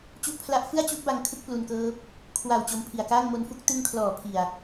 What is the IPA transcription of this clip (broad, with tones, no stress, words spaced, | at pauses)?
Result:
t͡ɕu˦˥ʔpʰla˦˥ʔ fɯ˥˩a̯t͡ɕu˦˥ʔ ba˦˥ŋkʰɯ˦˥k̚plu˧nkɤː˦˥p̚ | kʰwa˨˩w t͡ɕo˧mpʰi˨˩a̯ kaː˥˩ŋmo˦˥nfu˥˩k̚ tɯ˧ŋkʰlɔː˩˦ pʰi˨˩a̯